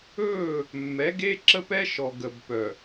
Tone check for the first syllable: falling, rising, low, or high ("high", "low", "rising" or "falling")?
falling